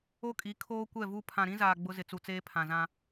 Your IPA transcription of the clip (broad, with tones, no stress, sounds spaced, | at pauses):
o˦ kʼ i˨˦ kʰ oː˦ kʷ ɛ˦˨ v u˦ pʰ ã˨ ɾ ĩ˦ z aː˨ ɡ͡b ʊ˦ z ɪ˨ t͡s u˨ t͡s eː˦ pʰ ã˨ z ã˦